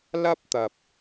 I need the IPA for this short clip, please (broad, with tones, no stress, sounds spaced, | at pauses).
l ɐ˥ p̚ t̪ ɐ˨ p̚